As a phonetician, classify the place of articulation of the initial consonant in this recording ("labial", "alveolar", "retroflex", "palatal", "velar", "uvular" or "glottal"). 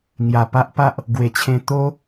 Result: velar